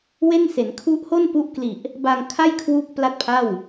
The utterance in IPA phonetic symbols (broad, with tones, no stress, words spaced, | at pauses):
we˥˩nse˩˦n kʰu˦˥ʔho˥˩n pu˦˥ʔkli˨˩ʔ | ba˧ŋkʰa˥˩jkʰwu˦˥k̚ pla˥˩t̚pʰa˥˩w